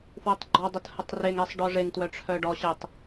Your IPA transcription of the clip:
fwɛtˤɡ͡ǃɔdˤət hətˤreŋɛsˤ ɖɔʐeŋtwœ ʈ͡ʂʰœɖɔɕɛtˤ

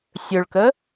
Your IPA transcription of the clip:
sʲɵɭkə

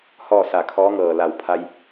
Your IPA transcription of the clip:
hɔː˥˨sa˧˩kʰɔː˧˥ŋɤː˧˩ la˧˩wpʰa˧j

